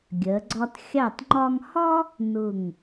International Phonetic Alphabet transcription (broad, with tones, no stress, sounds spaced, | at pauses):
ɡʲ ɜ˩˧ ɡ͡ǀ ɒ˧ t xʲ ɑ˧˩ t ŋ͡ǃ ɒ˧ ŋ h ɒ˥ | n ʊ˧˩ ŋ